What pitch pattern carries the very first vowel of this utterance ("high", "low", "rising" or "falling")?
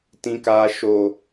high